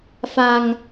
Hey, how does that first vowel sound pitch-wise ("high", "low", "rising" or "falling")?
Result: low